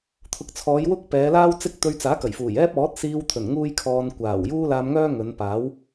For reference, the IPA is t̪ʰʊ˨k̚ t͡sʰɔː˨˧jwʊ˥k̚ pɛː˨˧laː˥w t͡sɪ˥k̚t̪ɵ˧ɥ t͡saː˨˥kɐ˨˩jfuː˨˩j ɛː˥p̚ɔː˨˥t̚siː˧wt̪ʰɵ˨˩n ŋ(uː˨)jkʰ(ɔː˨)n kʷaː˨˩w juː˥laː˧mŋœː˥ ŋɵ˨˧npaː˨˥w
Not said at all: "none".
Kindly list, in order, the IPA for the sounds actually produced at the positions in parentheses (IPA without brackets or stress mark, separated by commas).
uː˥, ɔː˧